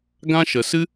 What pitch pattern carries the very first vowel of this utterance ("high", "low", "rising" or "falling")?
high